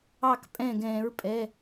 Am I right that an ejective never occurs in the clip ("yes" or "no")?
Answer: no